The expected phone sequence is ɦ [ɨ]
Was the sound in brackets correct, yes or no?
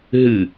yes